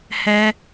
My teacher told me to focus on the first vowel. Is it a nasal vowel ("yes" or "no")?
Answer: no